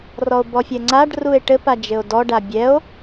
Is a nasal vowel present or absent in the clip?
absent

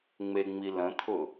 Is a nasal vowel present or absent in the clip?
present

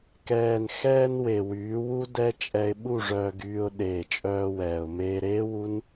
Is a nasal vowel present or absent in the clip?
absent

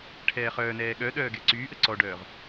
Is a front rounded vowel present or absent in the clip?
present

